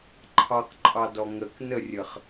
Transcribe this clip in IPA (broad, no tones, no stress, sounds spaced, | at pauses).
ǃʰ ɑ q ǃʼ ɑ d ɔ ŋ ə k n ə rʲ ə χ